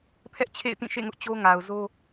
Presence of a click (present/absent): absent